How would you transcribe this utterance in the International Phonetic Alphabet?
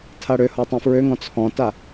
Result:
tʰ a ɽ ø h ɔ tˤ ã f ɹ ø ŋ ɔ̃ t͡sʰ ɔ̃ t a

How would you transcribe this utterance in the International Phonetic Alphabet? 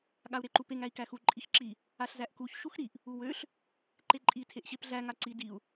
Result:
ɠ a u̯ ɾ e ǃ u p e ŋ æ i̯ k æ x u ǃʼ i x ǁ i | a ɬ z æ ʔ k u ç ʃ u x ɾ i ʔ | u w ø ɬ | ǃ e ǃʼ i tʰ e ʔ ɕ e p ɮ æ ŋ a ǀ i d i u̯

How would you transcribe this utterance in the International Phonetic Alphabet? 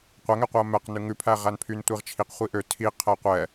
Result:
qʷ æ ŋ ɛ qʷ ɛ ɐ̯ m ɛ q n ʉ ŋ ʉ pʰ æ ʁ æ n pʰ y n tʷ i ʁ t͡ʃʰ i q χʷ i ʔ ø tʰ i qʰ ɛ qʷ ɛ

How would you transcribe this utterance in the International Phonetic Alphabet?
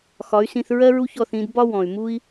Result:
x ɒ˨˦ y̯ s ĩ˧ θ ɹ ɜ˦ ɹ u˦ ç ɔ˦˨ θ ĩ˧ d b ɒ˦ w ɔ̃˨ y̯ m u˦ i̯

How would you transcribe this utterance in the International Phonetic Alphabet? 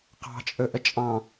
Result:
q ɑ̤ t͡ʃʼ ɵ ʔ ə t͡ʃʼ ɑ̃

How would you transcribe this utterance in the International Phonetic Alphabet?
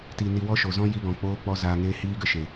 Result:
t i˨ n i˨ w ɔ˦ ʃ o˨ z ɔ̃˦ j i˧ ɡ ɔ̃˨ k͡p oː˧ k͡p ɔ˧ z aː˨ ŋ eː˧ h iː˦ ɡ ə˧ ʃ e˨

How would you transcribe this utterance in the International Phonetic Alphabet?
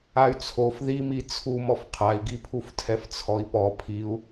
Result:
a y̯ t͡sʰ o f ð i m i t͡sʰ u m ɔ f qʰ a i̯ ɡ i pʰ u f tʰ ɛ f t͡sʰ ɔ i̯ p ɔ pʰ i u̯

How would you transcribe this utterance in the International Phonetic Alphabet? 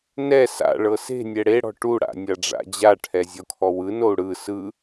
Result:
n ɛ s a̰ ɭ ɤ s e̤ nʲ ɛ ɽ e ɽ ɔ̤ ʈ u ɽ a̰ nʲ a ɖ͡ʐ a̰ d͡ʑ a ʈʰ ɛ zʲ ɔ kʰ ɔ w ɯ n o u̯ ɽ ɯ s ɯ

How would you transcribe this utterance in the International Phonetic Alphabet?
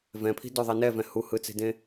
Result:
v ɛ̃ pʰ i̤ d o ðˤ ɛ n ɛ v ɛ̃ h u h ɯ t͡s e̤ d ẽ

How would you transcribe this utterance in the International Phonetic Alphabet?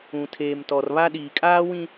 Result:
ũ˨ tʰ eː˨ m t ɔ˨ r β a˦ ɗ iː˨ kʼ aː˦ w ĩ˦

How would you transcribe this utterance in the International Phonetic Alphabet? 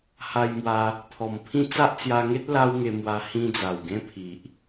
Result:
h a˧ j m w a˧ | t̪ʰ ɔ˨˩ m pʰ ĩ˥˧ t͡s a˦ ʔ t͡s j a˧ ŋ e˦ t̚ l a˦ w ŋ e˧ m w a˧ h ĩ˦ d͡z a˨˩ w ɡ ẽ˦ pʰ i˨ ʔ

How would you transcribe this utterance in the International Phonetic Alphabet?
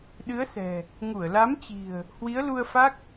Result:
ɗ ɨ˨˦ ə̯ s ɛ̤˨˩ | ŋ u˧˩ ə̯ l a˨˦ m t͡ɕ i̤˨˩ ə̯ | h w i˨˦ ə̯ l u˧ ə̯ f a˦˥ k̚

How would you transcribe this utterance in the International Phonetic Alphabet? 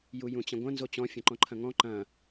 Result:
j u j ũ t͡ɕ ɐ̃ ɡʷ ɐ̃ n z o t͡ɕ ɔ̃ fʲ ɐ̃ ǃ ɔ̃ ǃʰ ɐ̃ ŋ ɔ̃ ǃ ɐ̃

